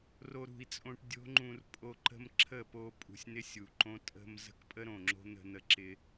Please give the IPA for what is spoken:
ro˧ɾṳ˨i̯t͡sʼõ˧ʈ dʲo̤˦ŋ͡ǃũ˧r pʼo˧ ǃə̤˦m ǁʰə˦˨ po˧pʼṳ˨sʲnɪ˧ sʲu˨ǃõ˦ tʼə̤˧m zə̤˦kpʼə˦ɾõ˨ŋ͡ǁo̤˦ n̪ə̤˧n̪ə˧ ǁɪ˧

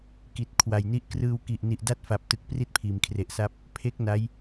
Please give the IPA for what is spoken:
ki˨˩t̚kʰwa˨˩jni˥˩ʔ krɯː˧wki˨˩ʔ ni˨˩ʔda˦˥t̚fa˨˩p̚tɯ˨˩k̚ pri˥˩t̚pʰiː˩˦mkʰre˨˩ʔsa˦˥p̚ | pʰe˦˥k̚ na˦˥j

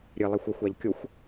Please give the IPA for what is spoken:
ɾʲɨlˠixʷ ɐxʷaʎ kʲoxʷ

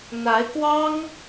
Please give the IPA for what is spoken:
n̪a˧˥ɪ̯kwɑ˥ŋ

